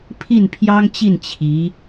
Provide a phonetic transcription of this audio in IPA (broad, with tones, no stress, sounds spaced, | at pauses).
pʰ i˥˩ n pʰ j ɑ˥ ŋ t͡ɕ i˥˩ n t͡ɕʰ i˧˥